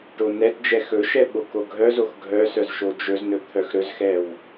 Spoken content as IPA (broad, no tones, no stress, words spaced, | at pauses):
ʈonɛtd͡ʒɛ xɵʃɛ ɓokoɡʱœzox ɡʱœ sœzʃod͡ʒɵznɵ t̪ʰœxɾɵzxɛw